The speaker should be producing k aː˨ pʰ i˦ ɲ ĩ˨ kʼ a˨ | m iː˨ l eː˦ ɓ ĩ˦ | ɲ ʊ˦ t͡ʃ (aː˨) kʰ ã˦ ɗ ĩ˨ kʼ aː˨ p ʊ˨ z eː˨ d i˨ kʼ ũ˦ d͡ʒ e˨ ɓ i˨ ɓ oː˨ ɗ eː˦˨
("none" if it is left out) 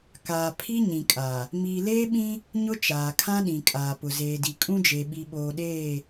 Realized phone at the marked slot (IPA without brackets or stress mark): aː˨